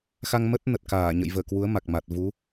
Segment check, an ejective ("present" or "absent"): absent